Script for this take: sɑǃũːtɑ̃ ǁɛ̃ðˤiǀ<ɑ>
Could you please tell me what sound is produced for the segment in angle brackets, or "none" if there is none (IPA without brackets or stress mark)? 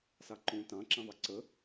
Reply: ə